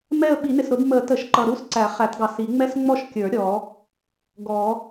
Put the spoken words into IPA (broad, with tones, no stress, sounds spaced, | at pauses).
m ɛ˥˧ ə̯ ɓ i˨˩˦ n ɪ˨˩ s ɾ ʊ˨˩˦ d m ə˨˩˦ t ə˨˩˦ ʃ ǃ ʌ˨˩ ɾ u˥˧ s ǀ æ˨˩˦ χ æ˨˩˦ t ɡ ɑ˨˩ s i˨˩˦ ŋ͡m ɛ˥˧ s ŋ͡m ɔ˥˧ ʃ kʲ ə˞˨˩˦ ɾʲ ɔ˨˩˦ | ɡ ɔ˨˩˦